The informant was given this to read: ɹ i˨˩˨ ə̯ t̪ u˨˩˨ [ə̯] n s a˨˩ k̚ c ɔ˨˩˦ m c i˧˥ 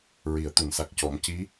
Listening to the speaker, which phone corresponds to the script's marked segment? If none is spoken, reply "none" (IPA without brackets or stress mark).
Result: none